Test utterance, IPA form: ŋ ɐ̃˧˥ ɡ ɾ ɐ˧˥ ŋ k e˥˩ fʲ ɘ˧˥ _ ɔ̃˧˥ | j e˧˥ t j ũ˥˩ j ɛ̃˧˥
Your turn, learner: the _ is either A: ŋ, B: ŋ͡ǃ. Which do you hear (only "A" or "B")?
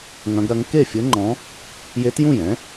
B